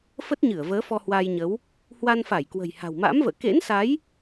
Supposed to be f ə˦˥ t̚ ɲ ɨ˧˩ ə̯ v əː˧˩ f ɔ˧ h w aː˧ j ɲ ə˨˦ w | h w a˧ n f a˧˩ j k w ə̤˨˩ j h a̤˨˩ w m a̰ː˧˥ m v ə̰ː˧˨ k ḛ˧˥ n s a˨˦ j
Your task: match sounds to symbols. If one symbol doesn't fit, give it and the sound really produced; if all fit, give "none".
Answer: əː˧˩ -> əː˨˦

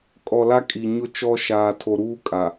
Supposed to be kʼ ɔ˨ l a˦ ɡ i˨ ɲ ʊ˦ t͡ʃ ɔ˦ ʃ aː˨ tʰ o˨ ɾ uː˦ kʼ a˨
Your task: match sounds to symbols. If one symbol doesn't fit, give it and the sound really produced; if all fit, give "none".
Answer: ɡ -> kʼ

